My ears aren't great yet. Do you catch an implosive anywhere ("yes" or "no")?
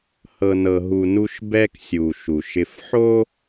no